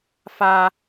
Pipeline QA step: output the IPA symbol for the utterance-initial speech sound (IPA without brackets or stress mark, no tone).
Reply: f